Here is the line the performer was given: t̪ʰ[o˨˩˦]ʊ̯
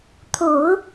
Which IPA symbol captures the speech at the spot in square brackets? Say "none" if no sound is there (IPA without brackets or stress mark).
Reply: o˨˩˦